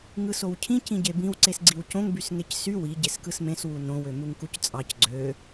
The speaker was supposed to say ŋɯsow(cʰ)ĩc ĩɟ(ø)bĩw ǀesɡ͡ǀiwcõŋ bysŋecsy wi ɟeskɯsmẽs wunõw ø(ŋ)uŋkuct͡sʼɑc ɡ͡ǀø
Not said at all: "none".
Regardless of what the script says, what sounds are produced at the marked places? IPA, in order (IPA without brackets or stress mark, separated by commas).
cʰ, e, m